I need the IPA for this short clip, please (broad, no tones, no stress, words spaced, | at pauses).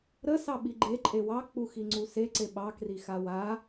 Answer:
ɾə sɑɓiɡ͡ǃe ǃʼewɑ k͡puxiŋ͡ǀuse ǀeɓɑ krixawa